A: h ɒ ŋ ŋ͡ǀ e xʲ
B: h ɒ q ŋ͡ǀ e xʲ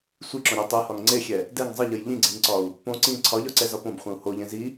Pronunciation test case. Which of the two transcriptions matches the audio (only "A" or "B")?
A